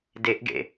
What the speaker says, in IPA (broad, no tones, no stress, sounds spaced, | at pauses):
d e ʔ ɡ ḛ